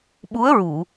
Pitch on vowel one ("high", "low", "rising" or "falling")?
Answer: rising